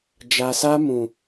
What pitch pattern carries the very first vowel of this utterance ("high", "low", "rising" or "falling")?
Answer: low